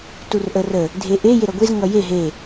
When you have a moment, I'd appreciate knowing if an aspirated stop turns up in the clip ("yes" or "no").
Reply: no